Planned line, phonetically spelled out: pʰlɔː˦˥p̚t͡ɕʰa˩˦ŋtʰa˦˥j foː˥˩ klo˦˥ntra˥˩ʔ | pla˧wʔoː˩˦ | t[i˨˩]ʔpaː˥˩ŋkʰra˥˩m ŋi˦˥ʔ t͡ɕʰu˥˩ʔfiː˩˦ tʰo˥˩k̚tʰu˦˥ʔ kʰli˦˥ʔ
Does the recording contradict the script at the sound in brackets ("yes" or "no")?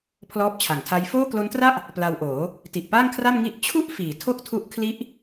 no